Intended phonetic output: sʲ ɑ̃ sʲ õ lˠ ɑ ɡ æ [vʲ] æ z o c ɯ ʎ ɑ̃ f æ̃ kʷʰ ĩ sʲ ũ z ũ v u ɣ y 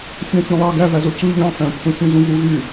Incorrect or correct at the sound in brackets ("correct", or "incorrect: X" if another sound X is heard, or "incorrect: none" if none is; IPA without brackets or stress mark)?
incorrect: v